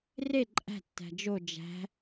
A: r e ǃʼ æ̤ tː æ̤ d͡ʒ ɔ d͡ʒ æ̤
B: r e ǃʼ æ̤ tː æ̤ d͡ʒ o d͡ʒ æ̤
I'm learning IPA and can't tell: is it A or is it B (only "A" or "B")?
B